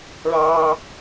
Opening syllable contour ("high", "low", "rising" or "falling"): high